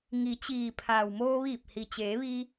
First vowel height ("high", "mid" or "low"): high